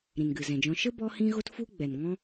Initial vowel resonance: nasal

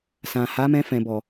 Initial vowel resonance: nasal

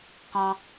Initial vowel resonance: nasal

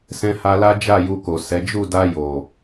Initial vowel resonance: nasal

